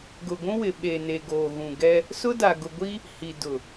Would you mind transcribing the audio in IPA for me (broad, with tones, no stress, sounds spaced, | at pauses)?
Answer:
ɡ ʊ˨ ɡʷ ũ˦ w ɪ˨ ɓ e˨ n e˨ ɡ oː˨ ɣ ũ˨ ɡ ɛ˦ | s ʊ˦ d a˨ ɡ ʊ˨ ɡʷ i˦ | h i˨ d ʊ˨